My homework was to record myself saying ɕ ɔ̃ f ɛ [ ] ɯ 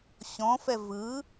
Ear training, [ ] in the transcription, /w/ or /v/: v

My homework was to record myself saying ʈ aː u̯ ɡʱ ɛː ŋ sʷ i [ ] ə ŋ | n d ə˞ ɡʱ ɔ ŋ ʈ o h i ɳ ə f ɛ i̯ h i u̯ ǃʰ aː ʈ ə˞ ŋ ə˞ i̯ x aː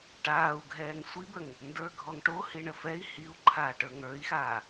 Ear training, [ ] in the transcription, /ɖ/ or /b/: b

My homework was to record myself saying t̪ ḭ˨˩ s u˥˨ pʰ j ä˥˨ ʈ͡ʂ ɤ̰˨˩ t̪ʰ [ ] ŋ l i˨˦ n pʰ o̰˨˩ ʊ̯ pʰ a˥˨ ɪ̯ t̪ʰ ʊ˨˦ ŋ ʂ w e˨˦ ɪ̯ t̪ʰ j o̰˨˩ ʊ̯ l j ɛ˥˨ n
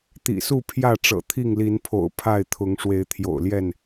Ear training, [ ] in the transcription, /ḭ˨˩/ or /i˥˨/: i˥˨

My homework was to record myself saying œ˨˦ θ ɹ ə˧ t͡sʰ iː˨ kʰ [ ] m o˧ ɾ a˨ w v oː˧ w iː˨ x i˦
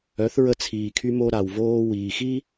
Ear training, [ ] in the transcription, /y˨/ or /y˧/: y˧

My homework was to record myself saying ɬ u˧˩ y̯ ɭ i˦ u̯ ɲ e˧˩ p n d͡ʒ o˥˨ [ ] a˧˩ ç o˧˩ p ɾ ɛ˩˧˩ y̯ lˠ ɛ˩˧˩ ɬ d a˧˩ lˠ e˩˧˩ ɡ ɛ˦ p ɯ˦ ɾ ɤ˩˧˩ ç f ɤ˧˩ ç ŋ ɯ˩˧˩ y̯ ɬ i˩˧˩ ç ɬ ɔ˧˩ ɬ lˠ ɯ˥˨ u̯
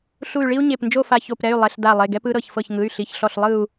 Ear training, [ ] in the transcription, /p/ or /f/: f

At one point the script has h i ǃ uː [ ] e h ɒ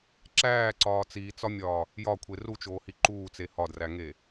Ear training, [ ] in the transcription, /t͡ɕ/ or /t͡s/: t͡s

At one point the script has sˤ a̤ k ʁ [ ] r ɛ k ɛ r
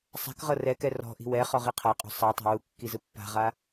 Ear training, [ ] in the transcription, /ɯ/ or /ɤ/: ɤ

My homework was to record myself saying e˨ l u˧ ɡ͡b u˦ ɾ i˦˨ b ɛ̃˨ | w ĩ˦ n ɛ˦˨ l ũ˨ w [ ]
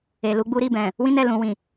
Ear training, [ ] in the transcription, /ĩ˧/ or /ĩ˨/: ĩ˨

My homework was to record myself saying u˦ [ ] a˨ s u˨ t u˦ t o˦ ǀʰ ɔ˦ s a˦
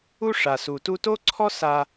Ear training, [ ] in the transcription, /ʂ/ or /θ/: ʂ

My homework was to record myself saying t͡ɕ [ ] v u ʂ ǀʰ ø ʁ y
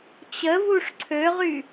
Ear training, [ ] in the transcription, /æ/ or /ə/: ə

